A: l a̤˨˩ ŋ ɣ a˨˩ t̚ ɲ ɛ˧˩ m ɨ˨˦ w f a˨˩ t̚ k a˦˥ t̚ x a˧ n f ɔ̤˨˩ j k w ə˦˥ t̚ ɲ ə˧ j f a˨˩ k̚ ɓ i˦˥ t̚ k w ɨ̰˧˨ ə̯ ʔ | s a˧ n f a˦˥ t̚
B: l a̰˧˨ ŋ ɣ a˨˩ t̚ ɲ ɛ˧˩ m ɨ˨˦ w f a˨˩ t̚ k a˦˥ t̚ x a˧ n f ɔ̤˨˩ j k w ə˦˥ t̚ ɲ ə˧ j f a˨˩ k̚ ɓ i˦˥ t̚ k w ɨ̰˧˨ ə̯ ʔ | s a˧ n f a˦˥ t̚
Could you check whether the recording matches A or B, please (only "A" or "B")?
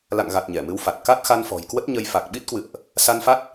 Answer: B